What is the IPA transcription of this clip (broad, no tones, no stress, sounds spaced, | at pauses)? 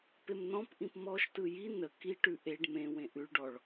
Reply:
p e m n ɔ̃ p ʔ ĩ p m ɔ ʃ t ɯ j i n ə k i ʈ ʉ ʔ e ɖ m ẽ w ẽ ʔ ʉ ɭ ɖ ɔ ɭ